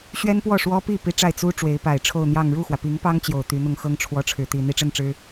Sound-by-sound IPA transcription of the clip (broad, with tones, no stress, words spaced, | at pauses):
ɕɥɛ˥npwɔ˥˩ʂwɔ˥pi˥˩ pi˥ʈ͡ʂa˥˩ɪ̯ t͡su˥ ʈ͡ʂwe˧˥ɪ̯pa˨˩ɪ̯ʈ͡ʂʰo˥˧ʊ̯ n̪jɑ˥˧ŋ ɻu˥˩xwä˩pi˧˥ŋpɑ˥ŋ t͡ɕjo˨˩ʊ̯t̪y˧˥n̪ʊ˥˩ŋ xɤ˥ŋʈ͡ʂʰwɔ˧˥ ʈ͡ʂʰɻ̩˧˥t̪i˨˩ n̪i˥ʈ͡ʂə˥˩nʈ͡ʂɻ̩˥